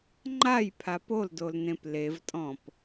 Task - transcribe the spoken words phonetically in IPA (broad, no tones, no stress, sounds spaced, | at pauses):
ŋ͡ǃ a j pʰ a p o l d o l n ẽ p l e v tʼ ɔ̃ p